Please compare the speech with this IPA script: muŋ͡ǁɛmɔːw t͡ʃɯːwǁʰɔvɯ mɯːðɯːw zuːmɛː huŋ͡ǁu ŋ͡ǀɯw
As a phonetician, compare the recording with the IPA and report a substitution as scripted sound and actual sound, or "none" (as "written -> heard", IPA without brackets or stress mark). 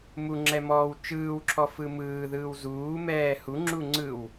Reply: v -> f